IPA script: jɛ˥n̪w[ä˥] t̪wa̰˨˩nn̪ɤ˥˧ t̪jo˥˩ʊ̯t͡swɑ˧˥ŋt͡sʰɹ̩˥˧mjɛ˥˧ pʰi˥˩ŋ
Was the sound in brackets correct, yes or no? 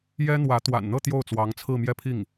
no